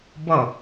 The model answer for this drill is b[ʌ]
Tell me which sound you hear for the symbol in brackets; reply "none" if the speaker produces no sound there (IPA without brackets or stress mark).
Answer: ʌ